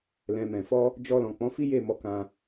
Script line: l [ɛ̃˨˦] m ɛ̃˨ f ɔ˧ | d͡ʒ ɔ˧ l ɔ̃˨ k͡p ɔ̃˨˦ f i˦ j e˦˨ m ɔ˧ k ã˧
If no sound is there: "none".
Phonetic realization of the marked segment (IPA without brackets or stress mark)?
ɛ̃˨